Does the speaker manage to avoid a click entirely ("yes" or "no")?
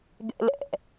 yes